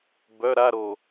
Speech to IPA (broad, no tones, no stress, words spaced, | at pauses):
bœ ɾaɾo